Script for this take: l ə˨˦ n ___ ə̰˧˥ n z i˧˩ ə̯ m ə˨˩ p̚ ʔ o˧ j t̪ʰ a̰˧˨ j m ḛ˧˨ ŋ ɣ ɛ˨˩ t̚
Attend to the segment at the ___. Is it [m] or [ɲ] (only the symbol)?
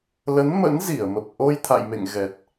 m